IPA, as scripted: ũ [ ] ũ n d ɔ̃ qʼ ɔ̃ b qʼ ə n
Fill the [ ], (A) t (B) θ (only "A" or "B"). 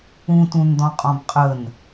A